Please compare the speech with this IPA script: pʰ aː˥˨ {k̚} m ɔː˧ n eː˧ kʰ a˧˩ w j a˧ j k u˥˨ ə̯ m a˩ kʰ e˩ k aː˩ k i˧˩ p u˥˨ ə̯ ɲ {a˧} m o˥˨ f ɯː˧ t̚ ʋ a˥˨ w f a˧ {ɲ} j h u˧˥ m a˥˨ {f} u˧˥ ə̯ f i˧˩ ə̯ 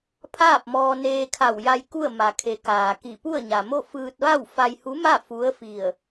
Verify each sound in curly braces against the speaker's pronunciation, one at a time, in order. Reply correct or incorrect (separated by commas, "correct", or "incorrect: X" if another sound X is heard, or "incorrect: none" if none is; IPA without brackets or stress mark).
incorrect: p̚, incorrect: a˩, incorrect: none, correct